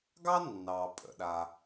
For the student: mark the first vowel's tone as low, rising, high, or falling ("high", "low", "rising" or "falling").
high